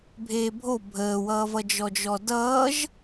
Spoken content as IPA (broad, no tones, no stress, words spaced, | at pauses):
bʱeːbʱo bʱəːwʌːvʌ d͡ʒɔd͡ʒɔdʌːʒ